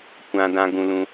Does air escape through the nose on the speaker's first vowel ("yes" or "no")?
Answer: yes